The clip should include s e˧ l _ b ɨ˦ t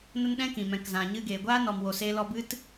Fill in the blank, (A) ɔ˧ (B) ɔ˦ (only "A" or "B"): A